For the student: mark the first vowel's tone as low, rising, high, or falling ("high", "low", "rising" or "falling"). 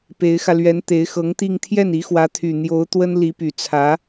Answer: rising